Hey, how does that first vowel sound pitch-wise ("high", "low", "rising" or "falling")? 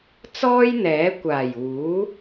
high